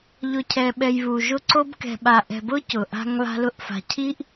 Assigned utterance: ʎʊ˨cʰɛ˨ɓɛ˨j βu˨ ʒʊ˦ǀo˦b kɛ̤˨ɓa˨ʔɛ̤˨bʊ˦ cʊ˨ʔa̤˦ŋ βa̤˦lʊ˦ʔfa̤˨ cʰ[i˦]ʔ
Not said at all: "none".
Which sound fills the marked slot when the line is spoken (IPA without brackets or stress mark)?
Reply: i˦